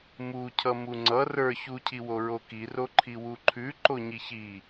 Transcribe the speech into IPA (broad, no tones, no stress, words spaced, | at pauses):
mucʰʌ muŋ͡ǀʌ rə˞ çucʰiwo ɹokiroǃʰi wuǃʰʉ ǃoɲiçi